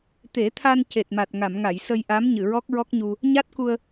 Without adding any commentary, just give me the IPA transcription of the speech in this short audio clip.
t̪e˨˩˦t̪ʰa˧n ce˨˩t̚ma˨˩t̚ŋa˨˩˨mŋa˨˩˨j sə˧jʔa˧˥m ɲɨ˨˩˨ɹɔ˦˥k̚ɹɔ˦˥k̚ɲu˧ | ɲa˦˥t̚ku˧ə̯

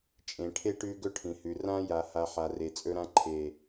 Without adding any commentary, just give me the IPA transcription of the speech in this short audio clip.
t͡ʃʼẽ˨ʈʰe˦ ʈʉ˦ɡɵ˦ʈʰĩ˨hʉ˨ rã˦ja˨ ha˨ ħa˨re˨ t͡sʼɵ˦ɾã˦ ǃʰe˨

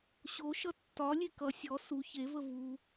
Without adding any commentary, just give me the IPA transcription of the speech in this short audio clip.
ɕoʃʌ tːɒlʲe kʌ sʲɔ su çevə vu

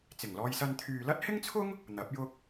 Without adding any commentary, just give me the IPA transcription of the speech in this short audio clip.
t͡sɪ˨˩ŋlɔː˧jsɐ˧n t̪ʰyː˨lɐ˥t̚hɪ˥ŋt͡sʰʊ˥ŋ | n̪ɐ˨˥p̚jʊ˥k̚

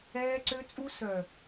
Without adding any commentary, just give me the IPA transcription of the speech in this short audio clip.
ɛː˦ǀø˦t͡sʼu˦ sœ˨

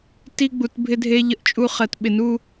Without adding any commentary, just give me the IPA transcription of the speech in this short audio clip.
ti˦ ɡ͡bu˨tbʱɪ˦dʱe˦ ʎə˦ʔt͡ʃʼu˦ χɜ˨tɓɪ˨nu˦

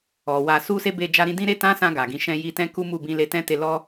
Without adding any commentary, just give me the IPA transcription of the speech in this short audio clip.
ɔ˨wa˧ su˦ se˦be˧ d͡ʒa˧ɾĩ˧dĩ˦ɾe˦ tã˦sã˧ ɡa˨ɡĩ˧ ʃɛ̃˧ji˧tɛ̃˦ ku˦ mu˦˨bĩ˧ le˧tɛ̃˦te˧ lɔ˦

